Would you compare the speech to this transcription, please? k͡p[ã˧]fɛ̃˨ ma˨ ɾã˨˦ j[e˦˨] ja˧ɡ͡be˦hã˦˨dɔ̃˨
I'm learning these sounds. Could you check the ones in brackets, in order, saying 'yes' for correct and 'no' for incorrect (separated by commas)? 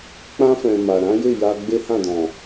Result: yes, yes